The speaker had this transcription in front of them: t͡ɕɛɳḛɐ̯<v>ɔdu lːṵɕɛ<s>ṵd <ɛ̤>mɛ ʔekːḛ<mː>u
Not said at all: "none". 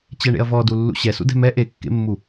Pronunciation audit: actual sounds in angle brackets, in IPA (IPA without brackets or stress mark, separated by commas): v, s, ɛ̤, mː